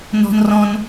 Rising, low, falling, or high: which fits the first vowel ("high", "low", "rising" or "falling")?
high